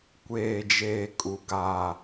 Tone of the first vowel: low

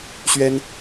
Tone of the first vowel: high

